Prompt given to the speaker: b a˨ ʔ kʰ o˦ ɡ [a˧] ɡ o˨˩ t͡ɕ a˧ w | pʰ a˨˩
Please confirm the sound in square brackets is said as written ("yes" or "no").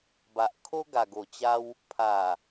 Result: no